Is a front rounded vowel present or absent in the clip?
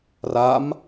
absent